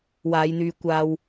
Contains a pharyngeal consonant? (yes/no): no